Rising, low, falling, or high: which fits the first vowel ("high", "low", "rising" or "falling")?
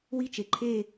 falling